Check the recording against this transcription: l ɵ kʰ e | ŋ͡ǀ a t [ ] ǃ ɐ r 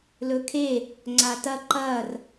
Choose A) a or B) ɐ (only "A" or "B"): B